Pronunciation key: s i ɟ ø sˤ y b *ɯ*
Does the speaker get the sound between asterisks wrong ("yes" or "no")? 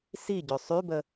yes